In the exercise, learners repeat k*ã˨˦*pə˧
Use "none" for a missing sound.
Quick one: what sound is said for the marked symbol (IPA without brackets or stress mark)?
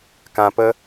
ã˨